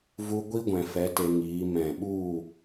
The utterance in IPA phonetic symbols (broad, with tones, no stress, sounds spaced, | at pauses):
v u˧ ɡʷ i˦ ɡʷ ɛ̃˨ f ɛ˨˦ t e˧ ŋ iː˨˦ m ɛ̃˨ ɓ u˦˨